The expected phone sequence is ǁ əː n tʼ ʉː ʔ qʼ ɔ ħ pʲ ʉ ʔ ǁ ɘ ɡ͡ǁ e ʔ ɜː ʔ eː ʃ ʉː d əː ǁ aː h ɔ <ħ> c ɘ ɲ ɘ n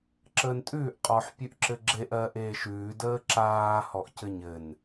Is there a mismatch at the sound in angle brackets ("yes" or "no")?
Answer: yes